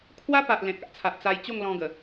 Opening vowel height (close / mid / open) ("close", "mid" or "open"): open